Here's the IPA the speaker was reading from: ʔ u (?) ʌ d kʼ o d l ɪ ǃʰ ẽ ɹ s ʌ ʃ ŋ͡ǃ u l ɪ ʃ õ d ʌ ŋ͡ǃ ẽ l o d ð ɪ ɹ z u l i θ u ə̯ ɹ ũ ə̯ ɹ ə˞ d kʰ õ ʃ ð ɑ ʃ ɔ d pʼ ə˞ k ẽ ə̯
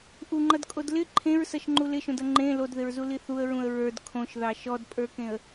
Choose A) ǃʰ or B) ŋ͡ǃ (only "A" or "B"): B